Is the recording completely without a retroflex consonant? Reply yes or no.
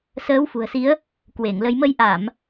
yes